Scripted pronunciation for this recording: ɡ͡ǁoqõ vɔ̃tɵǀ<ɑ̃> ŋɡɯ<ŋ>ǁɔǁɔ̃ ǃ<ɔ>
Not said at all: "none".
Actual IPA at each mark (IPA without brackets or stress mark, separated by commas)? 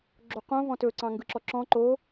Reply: ɑ̃, none, o